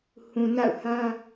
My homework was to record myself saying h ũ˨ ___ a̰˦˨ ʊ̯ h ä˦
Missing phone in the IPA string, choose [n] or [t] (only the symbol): n